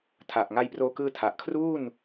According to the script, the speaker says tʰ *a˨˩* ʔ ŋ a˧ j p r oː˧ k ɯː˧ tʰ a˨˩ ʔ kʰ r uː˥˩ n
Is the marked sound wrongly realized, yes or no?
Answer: no